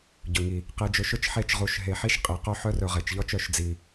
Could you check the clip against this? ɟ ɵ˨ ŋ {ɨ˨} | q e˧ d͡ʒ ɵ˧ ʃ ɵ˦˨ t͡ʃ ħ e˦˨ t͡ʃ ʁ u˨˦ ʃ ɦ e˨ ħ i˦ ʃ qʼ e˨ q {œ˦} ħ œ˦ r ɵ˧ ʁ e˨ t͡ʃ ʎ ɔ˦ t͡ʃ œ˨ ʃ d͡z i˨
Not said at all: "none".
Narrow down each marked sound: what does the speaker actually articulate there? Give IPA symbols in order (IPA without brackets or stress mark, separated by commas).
i˨, œ˦